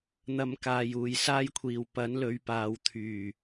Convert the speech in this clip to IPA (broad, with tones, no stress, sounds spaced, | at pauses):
n̪ ɐ˧ m k aː˨ j uː˨ j s aː˥ j kʷʰ iː˨ w p ɐ˨˥ n l ɵ˨˧ ɥ p aː˨ w t̪ʰ yː˨˩